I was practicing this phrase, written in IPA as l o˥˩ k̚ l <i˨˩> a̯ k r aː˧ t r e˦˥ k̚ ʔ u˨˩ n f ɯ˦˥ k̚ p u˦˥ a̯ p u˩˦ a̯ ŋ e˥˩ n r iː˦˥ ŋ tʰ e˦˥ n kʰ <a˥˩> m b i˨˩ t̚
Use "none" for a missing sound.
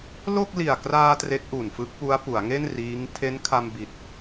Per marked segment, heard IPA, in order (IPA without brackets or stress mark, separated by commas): i˨˩, a˧